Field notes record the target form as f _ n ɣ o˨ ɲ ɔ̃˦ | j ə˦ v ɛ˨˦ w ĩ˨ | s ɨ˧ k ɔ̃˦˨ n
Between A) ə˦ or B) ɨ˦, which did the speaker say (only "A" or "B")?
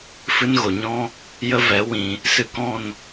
B